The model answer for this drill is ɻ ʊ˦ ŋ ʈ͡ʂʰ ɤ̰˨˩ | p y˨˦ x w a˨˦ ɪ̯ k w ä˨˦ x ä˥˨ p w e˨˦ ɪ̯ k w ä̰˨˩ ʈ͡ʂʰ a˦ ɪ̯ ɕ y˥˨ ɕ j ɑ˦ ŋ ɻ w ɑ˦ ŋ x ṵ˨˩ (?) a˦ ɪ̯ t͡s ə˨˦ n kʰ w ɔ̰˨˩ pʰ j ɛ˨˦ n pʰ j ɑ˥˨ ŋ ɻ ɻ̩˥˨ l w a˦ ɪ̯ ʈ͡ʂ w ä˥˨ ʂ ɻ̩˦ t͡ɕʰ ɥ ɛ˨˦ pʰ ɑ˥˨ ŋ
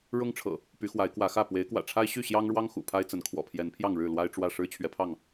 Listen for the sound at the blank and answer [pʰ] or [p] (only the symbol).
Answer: pʰ